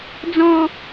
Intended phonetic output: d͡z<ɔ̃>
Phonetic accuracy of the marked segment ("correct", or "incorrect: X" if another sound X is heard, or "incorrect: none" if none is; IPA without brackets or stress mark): correct